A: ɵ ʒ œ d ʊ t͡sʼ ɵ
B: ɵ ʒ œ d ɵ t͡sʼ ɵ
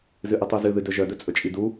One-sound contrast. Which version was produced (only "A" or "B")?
B